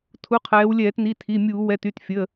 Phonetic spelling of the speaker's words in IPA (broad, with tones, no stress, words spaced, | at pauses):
tʰu˩˧˩qʰɛː˩˧wlʲɛː˧˩˧tni˩˧˩ tʰi˩˧˩mʲuː˧˩˧ wɛ˩˧˩ty˩˧˩tfʲə˩˧˩